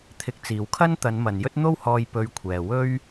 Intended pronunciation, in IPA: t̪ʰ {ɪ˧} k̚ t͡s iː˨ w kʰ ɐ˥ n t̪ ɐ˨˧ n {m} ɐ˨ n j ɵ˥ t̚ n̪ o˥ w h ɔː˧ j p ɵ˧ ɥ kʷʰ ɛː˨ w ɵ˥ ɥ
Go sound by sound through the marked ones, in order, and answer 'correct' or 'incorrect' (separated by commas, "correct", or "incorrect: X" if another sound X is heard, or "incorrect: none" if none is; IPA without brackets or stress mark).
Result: correct, correct